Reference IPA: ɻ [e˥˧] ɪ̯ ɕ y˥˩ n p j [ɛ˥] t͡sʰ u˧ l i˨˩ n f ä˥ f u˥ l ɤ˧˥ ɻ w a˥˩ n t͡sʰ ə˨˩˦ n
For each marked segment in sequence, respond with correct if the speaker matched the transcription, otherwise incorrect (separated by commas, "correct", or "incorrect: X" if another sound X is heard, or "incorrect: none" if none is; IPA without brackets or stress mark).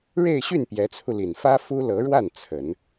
correct, incorrect: ɛ˧˥